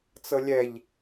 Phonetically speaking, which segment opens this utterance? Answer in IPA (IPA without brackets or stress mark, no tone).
t͡s